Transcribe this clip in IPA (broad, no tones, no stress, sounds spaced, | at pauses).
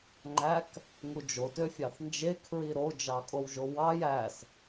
ŋ͡ǃ æ k | ŋ u d͡ʒ o t ø fʲ ɑ θ n d͡ʒ e kʰ ɹ i ɾ o d͡ʒ ɑ kʼ o w ʒ o w ɑ j æ s